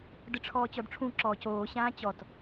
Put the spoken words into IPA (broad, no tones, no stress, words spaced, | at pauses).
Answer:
dɯʈ͡ʂʰɔːt͡ɕɔdʈ͡ʂʰũ ǁɔːcoː ɕãːt͡ɕɔt